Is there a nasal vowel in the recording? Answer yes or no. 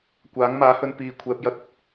no